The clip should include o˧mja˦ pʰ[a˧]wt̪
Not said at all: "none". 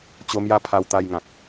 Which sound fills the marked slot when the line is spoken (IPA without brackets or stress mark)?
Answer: a˧